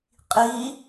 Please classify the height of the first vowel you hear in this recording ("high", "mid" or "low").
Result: high